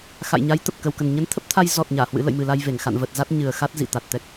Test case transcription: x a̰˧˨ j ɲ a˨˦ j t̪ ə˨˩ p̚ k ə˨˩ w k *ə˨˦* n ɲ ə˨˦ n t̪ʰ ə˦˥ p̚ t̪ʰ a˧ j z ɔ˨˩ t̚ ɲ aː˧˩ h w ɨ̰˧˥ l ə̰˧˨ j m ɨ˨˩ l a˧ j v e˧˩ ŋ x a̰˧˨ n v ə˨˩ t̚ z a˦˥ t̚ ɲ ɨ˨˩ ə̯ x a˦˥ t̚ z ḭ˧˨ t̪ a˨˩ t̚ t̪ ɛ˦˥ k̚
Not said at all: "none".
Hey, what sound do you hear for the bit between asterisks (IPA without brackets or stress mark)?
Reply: ə˨˩